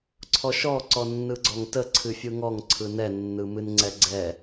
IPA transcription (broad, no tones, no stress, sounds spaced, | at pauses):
ǀʰ ɔ ʃ ɔ ǀ ɔ nː ɯ ɡ͡ǀ ɔ ŋ t ə ǀʰ ɨ fʲ ɯ ŋ ɔ ŋ ǀʰ ɯ n ɛ nː ɯ m ɨ n ŋ͡ǀ ɛ ɡ͡ǀ ɛ